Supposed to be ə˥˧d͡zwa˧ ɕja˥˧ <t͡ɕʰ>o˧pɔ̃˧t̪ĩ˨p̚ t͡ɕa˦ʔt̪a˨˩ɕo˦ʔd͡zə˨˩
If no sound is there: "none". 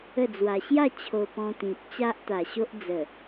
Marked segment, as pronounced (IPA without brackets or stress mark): t͡ɕʰ